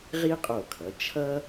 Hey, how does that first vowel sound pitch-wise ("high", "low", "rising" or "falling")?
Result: high